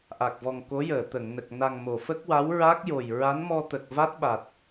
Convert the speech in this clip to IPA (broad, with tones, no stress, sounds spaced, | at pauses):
ʔ a˨˩ k̚ v ɔ˨˩ ŋ k o˧˥ j əː˨˩˨ t̪ ə˨˩˨ ŋ n ə˨˩ k̚ n a˨˩ ŋ m o˨˩˨ f ə˦˥ k̚ w a˧˥ w ɹ a˦˥ k̚ j o˨˩ j ɹ a˧˥ n m ɔ˧ t̪ ə˨˩ k̚ v a˦˥ t̚ ɓ a˨˩ t̚